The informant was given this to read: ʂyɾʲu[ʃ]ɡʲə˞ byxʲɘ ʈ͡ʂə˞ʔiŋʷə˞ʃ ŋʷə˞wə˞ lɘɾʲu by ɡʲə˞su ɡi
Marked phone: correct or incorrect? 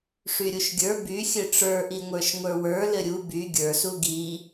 correct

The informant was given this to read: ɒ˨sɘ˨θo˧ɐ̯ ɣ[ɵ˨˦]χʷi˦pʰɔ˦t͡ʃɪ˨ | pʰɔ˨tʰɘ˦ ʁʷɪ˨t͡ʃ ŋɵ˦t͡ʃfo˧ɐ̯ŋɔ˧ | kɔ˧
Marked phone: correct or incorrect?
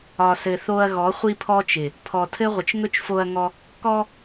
incorrect: ɔ˨˦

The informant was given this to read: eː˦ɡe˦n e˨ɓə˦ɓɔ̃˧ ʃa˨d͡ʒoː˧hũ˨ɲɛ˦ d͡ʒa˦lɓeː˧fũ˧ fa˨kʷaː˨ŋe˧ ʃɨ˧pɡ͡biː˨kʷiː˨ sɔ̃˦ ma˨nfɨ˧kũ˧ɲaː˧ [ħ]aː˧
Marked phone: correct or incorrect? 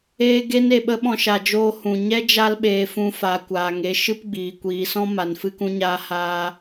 incorrect: h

